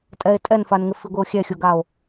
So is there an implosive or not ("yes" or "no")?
no